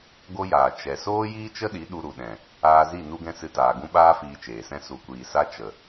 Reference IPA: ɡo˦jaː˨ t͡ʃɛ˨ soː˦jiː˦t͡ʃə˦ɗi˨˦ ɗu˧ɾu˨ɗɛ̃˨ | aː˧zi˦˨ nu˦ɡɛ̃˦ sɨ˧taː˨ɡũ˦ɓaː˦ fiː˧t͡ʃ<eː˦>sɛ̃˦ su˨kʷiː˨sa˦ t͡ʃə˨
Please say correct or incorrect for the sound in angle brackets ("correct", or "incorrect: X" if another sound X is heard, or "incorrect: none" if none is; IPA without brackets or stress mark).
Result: incorrect: eː˨